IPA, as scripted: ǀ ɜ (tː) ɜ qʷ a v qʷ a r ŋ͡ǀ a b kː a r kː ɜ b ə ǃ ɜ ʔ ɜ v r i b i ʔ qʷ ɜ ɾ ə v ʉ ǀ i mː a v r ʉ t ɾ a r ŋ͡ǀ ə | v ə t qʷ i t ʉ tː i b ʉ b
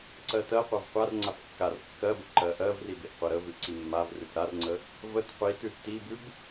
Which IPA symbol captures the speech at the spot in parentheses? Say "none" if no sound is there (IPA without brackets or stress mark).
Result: t